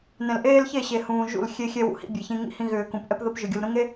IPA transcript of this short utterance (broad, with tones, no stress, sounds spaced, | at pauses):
n ɛ̃˨ l ʔ eː˦ l ç e˦˨ ɕ e˨ h ũː˨ ʒ ṵ˦˨ l xʲ e˦ xʲ ɛ˦ w ṵ˨ h ḭ˦ bʲ e˨ ç ĩ˦ ŋ ḭ˦ h ĩ˦ ɣ ʏː˨ k ũ˨ p ʔ ɛ˦ p ð ə˦ p ʒ ʏ˨ ɡʲ u˨ l ɾ ũ˦ ŋ e˦